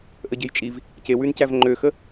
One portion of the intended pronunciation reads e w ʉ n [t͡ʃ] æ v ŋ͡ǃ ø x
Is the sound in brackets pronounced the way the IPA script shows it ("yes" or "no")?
no